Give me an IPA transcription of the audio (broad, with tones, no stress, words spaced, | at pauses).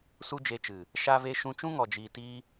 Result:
su˦d͡ʒe˧t͡ʃɨ˨ | ʃa˦ve˦ ʃũ˧t͡ʃũ˦ ŋɔ˨ d͡ʒiː˨tiː˧